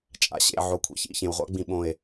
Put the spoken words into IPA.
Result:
t͡ʃʼ a̰˨ ɕ ḛ˨ ʕ o˨ kʷʰ ḛ˨ ç ḭ˧ ç ẽ˨ w ʁʷ a̰˦ ɡ͡b ĩ˨ ɓ õ˨ e̯

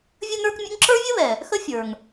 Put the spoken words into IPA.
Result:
vʲ ə˥ n̪ ə˞˥ k mʲ ə̰˥ ŋ ǁ ə˞˥ vʲ ə˥ β ɛ˩ | x ə˥ fʲ ə˞˩ ŋ

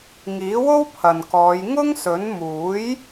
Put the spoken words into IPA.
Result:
ŋ iː˨˥ w o˥ w pʰ ɐ˨ n k ɔː˨˧ j ŋ ʊ˥ ŋ s ɵ˨˥ n m uː˨˥ j

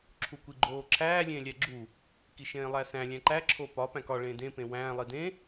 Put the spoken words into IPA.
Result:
ǁʰ u kʷ i ɡ͡ǃ oː ǁʰ æː lʲ ẽː lʲ æ ɡ͡ǁ u | k i ʃ ẽː lˠ æ s æ̃ lʲ æ̃ ǃ æ ǁʰ o p ɒ p æ̃ k ɒ ɭ ẽː d ẽ p ẽ w æ̃ː lˠ i d ẽ

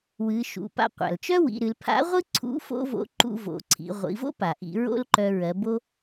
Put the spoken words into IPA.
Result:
w ɨ˩˧ ʃ ṵ˩ p a̰˧ qʷ a̰˩ l t͡ʃ œ˥ w ḭ˩˧ ɾ ɨ˩˧ l pʰ a̰˧˥ ʁʷ ɨ˥ ǀʰ ṵ˧˥ f o̰˥ v o̰˧˥ ǃ ṵ˧ v o̰˩˧ ǀʰ ḭ˩˧ ʁʷ ḭ˩˧ v o̰˥ p a˩ ʔ ḭ˩˧ ɹ o̰˥ l ǃ œ˧ ɹ ɜ˩˧ b o˧

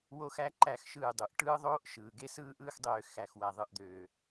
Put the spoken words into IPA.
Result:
w oː˦ x æ˦ ǃ æ˦˨ x ʃ ɯː˦˨ dˤ u˨ ʔ ʈ ɯː˦ ðˤ oː˦ ʔ ʃ ɯː˨ ɡ e˦ s ɯː˦ ʔ ɯː˦ x dˤ øː˧ x æ˨ x w æ˨ ðˤ ɯ˦˨ ʔ d̪ øː˨

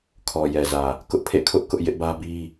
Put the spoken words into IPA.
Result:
kʰ ɔ˨ j ɛ˨ z ä˨ | k ʊ˦ ʔ pʰ ḛ˦˨ kʰ ʊ˦ ʔ k ʊ˦ ʔ j ɪ˦ ʔ b ä˦ b i˦

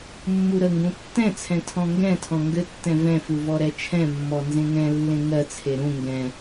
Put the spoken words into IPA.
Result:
mː u ɾ ə ŋ ɡ ũ tː ɛ̃ t͡sʰ ɛ̃ tʰ ɔ̃ ŋ ɡ ɛ̃ tʰ ɔ̃ ŋ ɡ ɘ tː ɛ̃ v ɛ̃ f u v ɔ ɾ ɛ t͡ʃʰ ɛ̃ mː ɔ n z ẽ ŋ ɛ̃ lː ẽ ŋ ɜ t͡sʰ e ɾ ũ ŋ ɡ ɛ̃

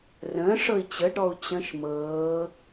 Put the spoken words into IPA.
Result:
r ə̃ː ʂ ɤ i̯ t͡ɕ ə ɖ ɾ ɔ u̯ t͡ɕ ə̃ ʃ m ɤː

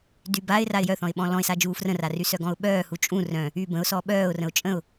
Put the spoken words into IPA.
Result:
d y b a ɪ̯ r a ɪ̯ j œ θ ɔ̃ ɪ̯ ɓ ɔ̃ l ɔ̃ ɪ̯ s a d͡ʒ uː f r ə̃ r a r y s œ ɡ ɔ̃ ʊ̯ ɓ œː h u t͡ʃʼ ũ r œ̃ | yː b ə̃ ʊ̯ s ɔ ɓ œː ʊ̯ r ə̃ ʊ̯ t͡ʃʼ ə̃ ʊ̯

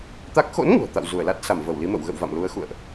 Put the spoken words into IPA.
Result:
t̪ a˦˥ k̚ x o̰˧˥ n ŋ ṳ˨˩ ə̯ t̪ a̰˧˨ w z u˧˩ ə̯ l a˦˥ t̚ s a˧˩ m v ə˧˩ w l i˨˦ m ə̰˧˨ w ɣ ə̰˧˨ w v a̰˧˨ m l u˨˦ ə̯ x ṵ˧˨ ə̯ ʔ

